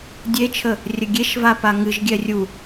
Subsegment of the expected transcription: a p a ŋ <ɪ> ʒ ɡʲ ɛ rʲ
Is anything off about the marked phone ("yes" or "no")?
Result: yes